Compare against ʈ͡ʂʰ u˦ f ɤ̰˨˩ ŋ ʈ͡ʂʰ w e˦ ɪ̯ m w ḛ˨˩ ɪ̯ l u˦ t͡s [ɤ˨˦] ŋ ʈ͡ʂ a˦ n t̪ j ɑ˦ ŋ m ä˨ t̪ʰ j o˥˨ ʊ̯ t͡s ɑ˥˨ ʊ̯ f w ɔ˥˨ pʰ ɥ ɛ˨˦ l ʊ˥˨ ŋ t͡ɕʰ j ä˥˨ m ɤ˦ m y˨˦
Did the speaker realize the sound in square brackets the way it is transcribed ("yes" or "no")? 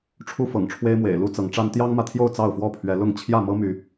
yes